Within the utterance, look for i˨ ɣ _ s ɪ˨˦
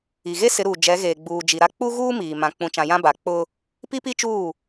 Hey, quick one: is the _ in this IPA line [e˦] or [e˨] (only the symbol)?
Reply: e˦